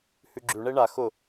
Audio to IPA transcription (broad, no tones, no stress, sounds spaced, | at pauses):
h ʉ ɡ͡ǁ ʉ ɳ e ɳ a x ʊ